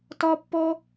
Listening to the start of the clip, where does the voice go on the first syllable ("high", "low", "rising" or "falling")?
high